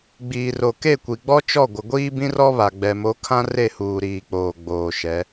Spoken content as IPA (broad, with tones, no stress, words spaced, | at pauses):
ɡ͡biː˨ro˨ke˦˨kʷi˨ ɡ͡bɔ˦t͡ʃɔ˦˨ɡʷɪ˨ ɡʷiː˦bĩ˦rɔ˦βa˨ ɡ͡bɛ˨mo˨˦ kʰã˦re˦˨huː˨ ɾiː˨k͡poː˨ ɡ͡boː˨ʃɛ˨˦